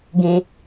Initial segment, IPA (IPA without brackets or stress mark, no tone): ɡ